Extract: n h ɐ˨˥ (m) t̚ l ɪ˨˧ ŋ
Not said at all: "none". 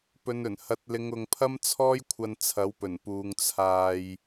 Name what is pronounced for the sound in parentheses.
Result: none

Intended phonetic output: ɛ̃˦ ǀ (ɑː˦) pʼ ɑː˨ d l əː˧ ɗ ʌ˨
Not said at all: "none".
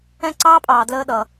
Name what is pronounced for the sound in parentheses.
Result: ɑː˦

